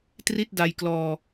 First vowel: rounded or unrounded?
unrounded